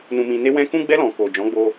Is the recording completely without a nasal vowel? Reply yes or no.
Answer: no